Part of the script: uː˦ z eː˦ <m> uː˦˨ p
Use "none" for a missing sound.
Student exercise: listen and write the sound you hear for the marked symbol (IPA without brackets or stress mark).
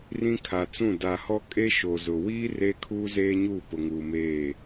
ɲ